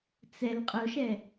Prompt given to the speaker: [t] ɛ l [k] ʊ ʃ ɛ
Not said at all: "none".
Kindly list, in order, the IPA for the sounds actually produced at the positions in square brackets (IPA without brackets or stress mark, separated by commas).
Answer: t͡s, qʼ